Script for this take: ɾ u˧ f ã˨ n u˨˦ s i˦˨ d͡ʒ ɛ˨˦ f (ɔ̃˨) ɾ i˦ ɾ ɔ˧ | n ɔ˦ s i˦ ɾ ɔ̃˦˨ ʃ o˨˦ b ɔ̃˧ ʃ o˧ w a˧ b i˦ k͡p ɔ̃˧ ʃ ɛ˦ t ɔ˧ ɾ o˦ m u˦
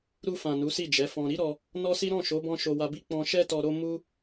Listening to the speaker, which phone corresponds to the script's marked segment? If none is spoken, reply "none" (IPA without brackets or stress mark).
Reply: ɔ̃˧